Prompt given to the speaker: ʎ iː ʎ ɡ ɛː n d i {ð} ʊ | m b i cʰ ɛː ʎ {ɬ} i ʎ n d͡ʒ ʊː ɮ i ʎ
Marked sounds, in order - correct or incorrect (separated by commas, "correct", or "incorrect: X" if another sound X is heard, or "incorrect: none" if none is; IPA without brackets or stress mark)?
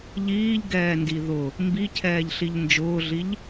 correct, correct